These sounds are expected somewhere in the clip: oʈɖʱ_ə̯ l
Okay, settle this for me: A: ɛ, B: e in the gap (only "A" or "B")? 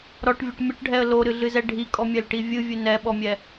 A